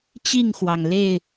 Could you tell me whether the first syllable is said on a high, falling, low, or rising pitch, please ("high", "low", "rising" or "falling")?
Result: falling